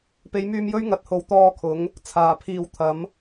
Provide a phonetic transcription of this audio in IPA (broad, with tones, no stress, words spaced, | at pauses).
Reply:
pe˨˧jmyː˧m jɵ˥ɥŋɐ˨˥t̚ho˨w t̪ɔː˧kʰʊ˨˧ŋ | t͡sʰaː˨˩pʰiː˧w t̪ʰɐ˨˥m